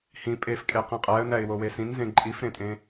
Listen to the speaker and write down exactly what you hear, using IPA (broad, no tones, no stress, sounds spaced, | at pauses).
h ĩ pʼ e f kʼ e q ĩ qʼ æ ə̯ n æ ɪ̯ w o w e s ĩ n z ẽ ǃʼ i f ɾ ẽ tʼ ẽ